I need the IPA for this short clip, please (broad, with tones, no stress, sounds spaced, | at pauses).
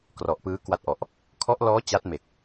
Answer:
k r ɔ˨˩ ʔ p ɯː˦˥ k w a˦˥ t̚ ʔ ɔ˨˩ ʔ | kʰ ɔ˦˥ ʔ l ɔː˦˥ t͡ɕ a˦˥ t̚ m e˨˩ k̚